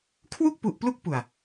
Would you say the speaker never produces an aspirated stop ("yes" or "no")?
no